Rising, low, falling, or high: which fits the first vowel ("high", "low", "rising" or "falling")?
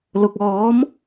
low